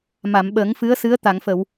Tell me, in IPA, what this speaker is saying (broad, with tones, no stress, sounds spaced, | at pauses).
m a˨˩˨ m ɓ əː˨˩˦ ŋ f ɨ˧˥ ə̯ s ɨ˧˥ ə̯ t̪ a˨˩˨ ŋ f ə˨˩˨ w